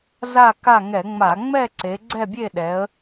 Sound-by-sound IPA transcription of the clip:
z a˦˨ k a˦˨ ŋ ɛ˧˩˧ ŋ͡m a˧˩˧ ŋ͡m ɛ˦˨ ǀ e˩˧ ɡ͡ǀ ɛ˦˨ bʲ e˦˨ ɗ ɛ˩˧ ə̯

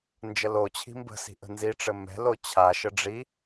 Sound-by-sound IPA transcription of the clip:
n d͡ʒ ə l o t͡ɕʰ i̤ m b ə̤ s i̤ ʔ ə̤ n z i ʈ͡ʂ ɘ m ɛ̤ l o t͡ɕʰ a ʃ ə ɖ͡ʐ i

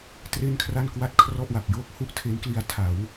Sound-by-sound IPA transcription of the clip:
t r e˥˩ n kʰ r a˥˩ n k w a˥˩ t̚ kʰ r ɔ˥˩ ʔ w a˨˩ p̚ j oː˥˩ k̚ h u˥˩ ʔ tʰ e˦˥ n k l i˧ a̯ tʰ a˩˦ w

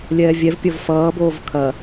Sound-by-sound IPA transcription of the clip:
lʲ ɛː vʲ ɛ v pʲ ʌ v f ʌː b oː v kʰ ɐ

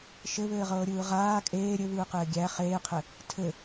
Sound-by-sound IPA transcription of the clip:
ʃ ɘ β ɘː ʁ ɤː ɾʲ ɯː ʁ aː kʼ eː ɾʲ ɘ β ɯː q ɘː ɡʲ æ χ eː qʰ ɘ | tʰ ɘ

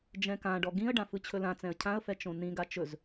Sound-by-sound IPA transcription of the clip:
d͡ʒ ɛ̃ k ã ɖ ɔ ɡ ĩ ə̯ ɖ ã f ɯ t͡ɕʰ ɵ l ã t͡s ɛ̃ ə̯ cʰ ã ə̯ f ɛ t͡ʃ õ n ĩ ɡ a t͡ʃ ɵ z

